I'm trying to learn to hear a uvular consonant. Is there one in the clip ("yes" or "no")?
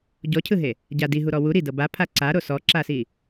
no